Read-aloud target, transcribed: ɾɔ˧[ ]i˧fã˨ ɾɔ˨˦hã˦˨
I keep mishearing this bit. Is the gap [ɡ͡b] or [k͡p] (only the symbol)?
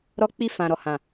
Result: k͡p